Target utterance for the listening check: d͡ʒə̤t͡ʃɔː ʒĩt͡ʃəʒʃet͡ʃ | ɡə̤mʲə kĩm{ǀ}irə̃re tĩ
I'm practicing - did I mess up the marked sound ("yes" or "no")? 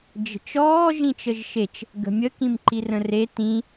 yes